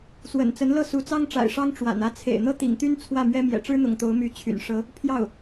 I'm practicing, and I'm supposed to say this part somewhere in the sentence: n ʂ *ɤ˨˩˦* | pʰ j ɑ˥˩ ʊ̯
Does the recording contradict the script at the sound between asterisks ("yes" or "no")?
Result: yes